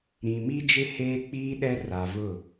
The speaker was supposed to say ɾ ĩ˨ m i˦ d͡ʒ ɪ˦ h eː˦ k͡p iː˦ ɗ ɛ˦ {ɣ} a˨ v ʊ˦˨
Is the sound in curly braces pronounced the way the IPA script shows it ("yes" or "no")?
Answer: no